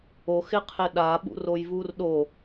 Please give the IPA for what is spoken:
o x ɪ qʰ ɪ ɗ a ɓ ṵ r o j v u r ɗ o

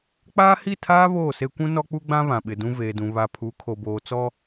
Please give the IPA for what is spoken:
k͡p aː˦ h i˦˨ tʰ aː˦ β oː˦˨ s e˦ kʷ ũ˦ n ɔ˦ k͡p u˦ ɡ͡b ã˦ β ã˨ ɓ ɪ˨ d ũ˦ v eː˨ d ũ˨ β a˨ pʰ u˨˦ kʰ o˨ b oː˨ t͡s ɔ˦

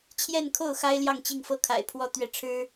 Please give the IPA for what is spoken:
t͡ɕʰ j ɛ˥˧ n kʰ o˥˩ ʊ̯ x a˥ ɪ̯ l j ɑ˥˧ ŋ t͡ɕ i˥˩ ŋ f ɤ˥ kʰ a̰˨˩ ɪ̯ pʰ w ɔ˥˧ t̪ ɥ ɛ˥˩ ʈ͡ʂʰ ɻ̩˥

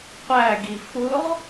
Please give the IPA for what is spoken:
qʷ æ ɡ i f ʊ ʁ

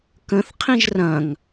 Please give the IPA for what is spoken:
k ə̃ θ qʰ ĩ ʒ r ɐ̃ ŋ

